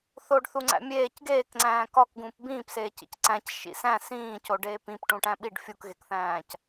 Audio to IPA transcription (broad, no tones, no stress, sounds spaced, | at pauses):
θ o ɖ θ u ŋ͡ǀ æ̰ mʲ eː c ɡ eː k ŋ͡ǀ æ̃ː k ɒ k ɡ ũː p b ĩː p s eː c ḭ c ǀ æ̃ c ʃ ḭ s æ̃ s ĩː c o ɖ eː p ĩ p ʈ ũ ʈ æ̃ ɓ i ɖ fʲ u k ɣ e k θ æ̃ː c